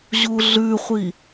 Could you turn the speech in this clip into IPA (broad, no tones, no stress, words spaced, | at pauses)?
ʑuɮʉχʷi